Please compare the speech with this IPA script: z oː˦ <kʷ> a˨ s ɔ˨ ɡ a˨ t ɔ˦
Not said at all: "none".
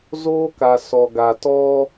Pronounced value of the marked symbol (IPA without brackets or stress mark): k